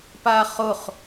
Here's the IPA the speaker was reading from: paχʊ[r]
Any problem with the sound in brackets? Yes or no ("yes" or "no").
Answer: yes